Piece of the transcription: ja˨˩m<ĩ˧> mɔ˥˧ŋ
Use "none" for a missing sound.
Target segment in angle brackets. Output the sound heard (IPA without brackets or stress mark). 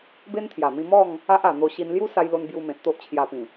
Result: ĩ˧